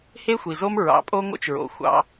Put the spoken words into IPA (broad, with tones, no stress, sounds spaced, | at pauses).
h e˦ xʷ i˨ z o˦ m ɹ ɑ̰˨˦ pʼ o˦ ŋ o̰˦ t͡ʃ ɹ o̰˨ xʷ ɑ̰˦